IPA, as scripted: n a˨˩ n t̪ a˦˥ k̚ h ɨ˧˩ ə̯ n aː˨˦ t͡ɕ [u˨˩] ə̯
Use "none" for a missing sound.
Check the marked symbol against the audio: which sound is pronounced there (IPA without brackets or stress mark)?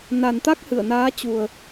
u˨˩